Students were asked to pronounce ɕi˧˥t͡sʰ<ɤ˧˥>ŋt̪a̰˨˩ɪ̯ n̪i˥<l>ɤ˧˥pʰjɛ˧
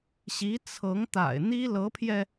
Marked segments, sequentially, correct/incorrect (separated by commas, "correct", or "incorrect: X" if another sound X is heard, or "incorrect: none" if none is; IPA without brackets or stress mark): correct, correct